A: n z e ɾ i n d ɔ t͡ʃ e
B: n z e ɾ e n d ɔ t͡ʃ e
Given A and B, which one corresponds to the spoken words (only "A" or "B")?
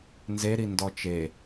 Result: A